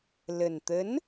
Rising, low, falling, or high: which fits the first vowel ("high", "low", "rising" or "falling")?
low